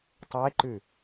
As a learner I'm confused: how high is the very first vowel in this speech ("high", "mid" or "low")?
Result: mid